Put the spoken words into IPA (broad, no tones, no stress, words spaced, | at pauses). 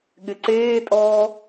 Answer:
ɠɪǀeːtʼɔː